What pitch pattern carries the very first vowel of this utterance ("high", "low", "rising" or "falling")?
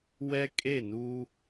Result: high